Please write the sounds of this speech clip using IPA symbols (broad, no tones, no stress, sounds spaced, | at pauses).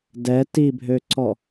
d ɛ t i bʱ ø ǀ ɔ